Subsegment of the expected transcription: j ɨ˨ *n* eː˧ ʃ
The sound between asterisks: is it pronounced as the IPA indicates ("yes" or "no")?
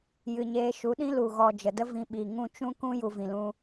no